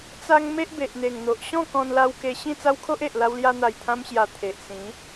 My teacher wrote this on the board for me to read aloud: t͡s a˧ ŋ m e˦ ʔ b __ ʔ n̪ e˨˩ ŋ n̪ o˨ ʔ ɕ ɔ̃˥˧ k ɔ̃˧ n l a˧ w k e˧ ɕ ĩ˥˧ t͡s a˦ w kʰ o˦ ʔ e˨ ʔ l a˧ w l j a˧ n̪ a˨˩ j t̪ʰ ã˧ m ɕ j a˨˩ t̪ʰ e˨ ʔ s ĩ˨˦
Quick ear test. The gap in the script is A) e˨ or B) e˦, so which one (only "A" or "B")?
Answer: A